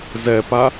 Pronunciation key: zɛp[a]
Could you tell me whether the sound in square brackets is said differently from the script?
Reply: no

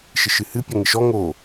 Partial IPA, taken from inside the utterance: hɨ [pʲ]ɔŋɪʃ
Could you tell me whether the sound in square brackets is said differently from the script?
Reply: no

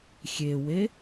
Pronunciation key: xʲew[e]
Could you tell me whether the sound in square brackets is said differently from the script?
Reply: no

